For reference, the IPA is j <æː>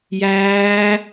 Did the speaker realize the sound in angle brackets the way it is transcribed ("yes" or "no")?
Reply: yes